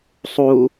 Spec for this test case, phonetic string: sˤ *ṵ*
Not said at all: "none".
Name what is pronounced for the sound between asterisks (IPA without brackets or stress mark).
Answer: u